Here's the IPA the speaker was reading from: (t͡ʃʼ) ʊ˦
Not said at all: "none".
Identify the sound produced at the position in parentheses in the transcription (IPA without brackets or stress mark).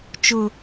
t͡ʃ